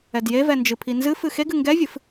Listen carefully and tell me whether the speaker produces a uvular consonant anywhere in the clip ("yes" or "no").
no